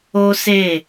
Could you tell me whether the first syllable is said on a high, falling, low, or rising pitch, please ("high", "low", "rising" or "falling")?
high